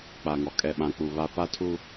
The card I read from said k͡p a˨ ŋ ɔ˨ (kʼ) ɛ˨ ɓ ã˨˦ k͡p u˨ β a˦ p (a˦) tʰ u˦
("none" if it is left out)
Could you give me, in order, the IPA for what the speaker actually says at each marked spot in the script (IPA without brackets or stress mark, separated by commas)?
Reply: kʼ, a˦